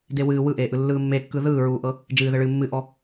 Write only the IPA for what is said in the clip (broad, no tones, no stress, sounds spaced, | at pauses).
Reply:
d e w ɨː w ɯ ʔ eː ʔ ɯ lː ɯː mː e kː ɯ ð ɯː ɹ uː ʔ ɤ | d͡ʒ ɨː ð ɘ ɭ ɨː mː ɨ ʔ ɔ